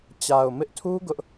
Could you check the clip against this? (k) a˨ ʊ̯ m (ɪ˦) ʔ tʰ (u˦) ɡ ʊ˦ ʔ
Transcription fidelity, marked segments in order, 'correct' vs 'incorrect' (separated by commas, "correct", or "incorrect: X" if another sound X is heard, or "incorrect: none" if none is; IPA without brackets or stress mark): incorrect: t͡ɕ, correct, correct